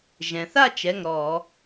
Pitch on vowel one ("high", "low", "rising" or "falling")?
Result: low